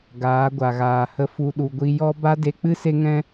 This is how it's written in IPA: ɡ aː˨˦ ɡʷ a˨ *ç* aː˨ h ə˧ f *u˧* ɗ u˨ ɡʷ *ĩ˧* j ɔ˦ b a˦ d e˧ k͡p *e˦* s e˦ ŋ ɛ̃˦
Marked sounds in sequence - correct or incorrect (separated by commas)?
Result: incorrect, correct, incorrect, incorrect